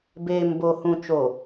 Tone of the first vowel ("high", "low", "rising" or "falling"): low